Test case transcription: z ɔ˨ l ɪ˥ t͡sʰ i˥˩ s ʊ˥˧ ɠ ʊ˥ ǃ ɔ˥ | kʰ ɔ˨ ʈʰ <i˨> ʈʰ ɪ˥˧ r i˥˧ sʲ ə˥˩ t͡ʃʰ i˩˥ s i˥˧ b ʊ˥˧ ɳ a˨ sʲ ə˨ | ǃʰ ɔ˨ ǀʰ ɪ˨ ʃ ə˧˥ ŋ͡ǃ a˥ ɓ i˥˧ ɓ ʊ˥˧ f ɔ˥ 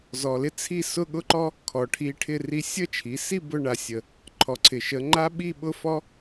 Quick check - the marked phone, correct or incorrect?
incorrect: i˧˥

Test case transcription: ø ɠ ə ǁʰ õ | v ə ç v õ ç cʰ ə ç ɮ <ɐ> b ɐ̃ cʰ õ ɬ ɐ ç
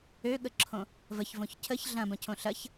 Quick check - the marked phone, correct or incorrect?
incorrect: ɐ̃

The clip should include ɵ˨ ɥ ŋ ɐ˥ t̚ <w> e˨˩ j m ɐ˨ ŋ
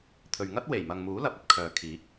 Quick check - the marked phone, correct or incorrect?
correct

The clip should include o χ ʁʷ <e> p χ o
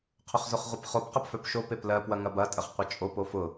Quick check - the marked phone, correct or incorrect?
correct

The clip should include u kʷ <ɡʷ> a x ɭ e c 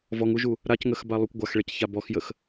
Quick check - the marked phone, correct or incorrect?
correct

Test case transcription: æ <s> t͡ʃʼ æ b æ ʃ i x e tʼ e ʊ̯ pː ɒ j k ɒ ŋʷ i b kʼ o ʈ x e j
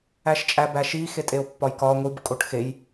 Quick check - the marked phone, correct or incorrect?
incorrect: ʃ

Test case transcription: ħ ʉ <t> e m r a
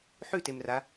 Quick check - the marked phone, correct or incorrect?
correct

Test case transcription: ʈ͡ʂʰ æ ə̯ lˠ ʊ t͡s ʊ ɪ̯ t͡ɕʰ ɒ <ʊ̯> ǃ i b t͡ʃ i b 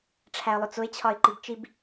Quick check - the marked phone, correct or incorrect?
incorrect: ɪ̯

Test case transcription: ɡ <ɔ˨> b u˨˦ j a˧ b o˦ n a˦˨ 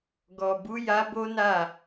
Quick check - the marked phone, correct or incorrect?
correct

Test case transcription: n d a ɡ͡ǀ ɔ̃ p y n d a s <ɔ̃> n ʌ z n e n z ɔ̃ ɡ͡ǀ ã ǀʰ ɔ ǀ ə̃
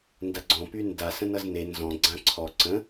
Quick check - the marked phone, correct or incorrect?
incorrect: ə̃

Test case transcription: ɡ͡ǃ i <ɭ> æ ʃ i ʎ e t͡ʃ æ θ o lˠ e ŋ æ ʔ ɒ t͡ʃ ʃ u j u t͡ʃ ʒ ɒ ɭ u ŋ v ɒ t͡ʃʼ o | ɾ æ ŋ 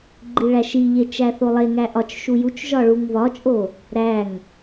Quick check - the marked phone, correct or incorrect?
correct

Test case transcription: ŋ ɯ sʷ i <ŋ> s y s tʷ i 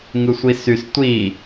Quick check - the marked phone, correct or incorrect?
incorrect: none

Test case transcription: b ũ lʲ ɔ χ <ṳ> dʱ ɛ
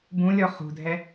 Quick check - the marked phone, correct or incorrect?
correct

